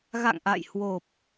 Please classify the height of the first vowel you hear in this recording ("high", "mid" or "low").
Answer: low